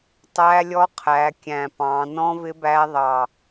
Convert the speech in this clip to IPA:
tˤ æ˦˥ lʲ ɔ˦˥ qʰ æ˨˦ kʲ æ̃˧˩ p ɑ̃˨˦ n ɔ̃˦˥ v ɪ˦˥ b æ˦˥ ðˤ ɑ˧˩

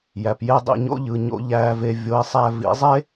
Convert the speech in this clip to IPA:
j æ˨ p j e˦ dˤ ḭ˦˨ ɲ o̰˦ ʎ ɯ˨ ɲ o̰˨ ʎ æ˨ v e˨ vʲ o˨˦ i̯ sˤ æ˦ v ḭ˨˦ zˤ e˦

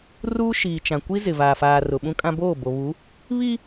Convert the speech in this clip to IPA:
r uː˦ ʃ iː˨ t͡ʃ ã˨ kʷ i˦ z ɪ˨ v aː˨ f aː˨ r ʊ˨ ɓ ũ˦ kʼ ã˦ b oː˦˨ b o˨ β u˨˦ | β i˦

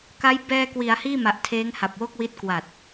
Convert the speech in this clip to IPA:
k a˦˥ j b ɛː˧ k w i˩˦ a̯ h iː˥˩ m a˨˩ ʔ tʰ eː˦˥ ŋ h a˨˩ p̚ w o˥˩ k̚ w i˦˥ t̚ k w a˨˩ t̚

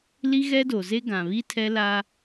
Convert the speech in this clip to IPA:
l i˦ ɣ ɛ˦ d o˨ z e˦ ɡ ã˨ β i˦ tʰ ɛ˦ l a˦

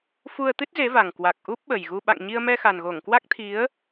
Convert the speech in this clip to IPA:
f u˧ ə̯ t̪ ɨ˦˥ t̚ z e˨˦ v a˨˩ ŋ k w a˨˩ k̚ ʔ u˦˥ p̚ ɓ ə˨˩ j ɣ u˧ ɓ a̰˧˨ ŋ ɲ i˧ ə̯ m ɛ˧ x a˨˩ n ɣ o˧˩ ŋ k w a˦˥ k̚ t̪ʰ i˨˦ ə̯

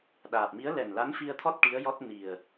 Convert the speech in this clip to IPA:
ɗ aː˨˩ p̚ m i˧˥ ə̯ l ɛ˨˩ n l a˧˥ n f i˧ ə̯ t̪ʰ ɔ˦˥ t̚ ʈ i˧˥ ə̯ j ɔ˦˥ t̚ n i˨˩ ə̯

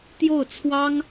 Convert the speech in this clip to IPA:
t̪ j o˥˩ ʊ̯ t͡sʰ w ɑ˥ ŋ

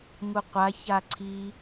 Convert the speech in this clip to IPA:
ŋ u qʷ a ç a ǀʰ i

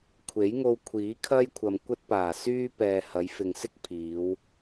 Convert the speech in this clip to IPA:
kʷʰ e˨˥ j ŋ o˧ w kʷʰ iː˨˥ kʰ ɐ˥ j kʷʰ ɐ˨ m kʷ ɐ˥ t̚ p aː˨˩ s yː˥ p ɛː˨ h ɐ˨˧ j f ɪ˨ ŋ s ɪ˥ k̚ pʰ iː˨˧ w

